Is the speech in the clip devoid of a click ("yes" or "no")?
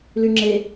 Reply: no